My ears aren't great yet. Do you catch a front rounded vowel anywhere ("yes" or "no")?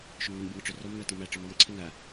yes